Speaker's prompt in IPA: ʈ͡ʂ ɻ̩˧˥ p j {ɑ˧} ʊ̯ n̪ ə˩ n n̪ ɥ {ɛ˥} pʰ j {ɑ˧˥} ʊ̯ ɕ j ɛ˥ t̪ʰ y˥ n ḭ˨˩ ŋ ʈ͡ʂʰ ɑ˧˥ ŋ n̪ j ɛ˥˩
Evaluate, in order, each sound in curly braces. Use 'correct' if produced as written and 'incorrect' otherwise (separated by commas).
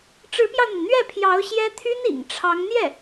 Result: correct, incorrect, correct